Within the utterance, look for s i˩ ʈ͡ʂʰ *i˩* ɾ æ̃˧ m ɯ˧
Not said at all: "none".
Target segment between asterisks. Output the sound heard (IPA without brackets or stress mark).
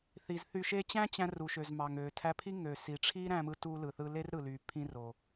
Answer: i˥